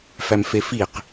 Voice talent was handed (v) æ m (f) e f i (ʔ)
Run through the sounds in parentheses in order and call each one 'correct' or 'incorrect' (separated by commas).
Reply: incorrect, correct, incorrect